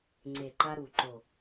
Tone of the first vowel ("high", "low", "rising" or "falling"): low